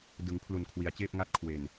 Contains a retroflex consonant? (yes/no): no